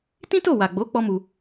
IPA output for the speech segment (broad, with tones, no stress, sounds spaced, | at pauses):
t ĩ˦ t o˦˨ w a˨ ɡ͡b o˨˦ k͡p ɔ˦ m u˧